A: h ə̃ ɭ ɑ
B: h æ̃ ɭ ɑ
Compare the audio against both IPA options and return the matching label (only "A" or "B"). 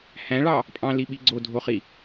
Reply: B